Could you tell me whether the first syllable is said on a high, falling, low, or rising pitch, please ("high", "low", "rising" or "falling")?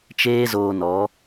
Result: high